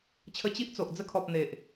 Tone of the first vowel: high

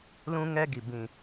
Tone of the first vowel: high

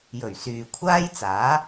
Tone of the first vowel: low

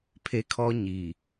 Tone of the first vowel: high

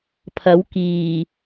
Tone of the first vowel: rising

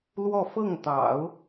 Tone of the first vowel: falling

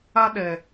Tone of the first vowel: high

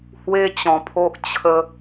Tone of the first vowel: high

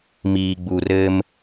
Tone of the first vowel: low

